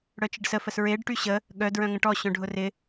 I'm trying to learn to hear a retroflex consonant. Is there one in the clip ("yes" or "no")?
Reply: yes